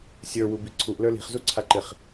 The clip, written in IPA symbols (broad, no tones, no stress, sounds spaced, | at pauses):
sʲ ə˞ w u b i ǀʰ u ʔ l ə˞ l i̤ χ z u ǀʰ a ǃ ɪ χ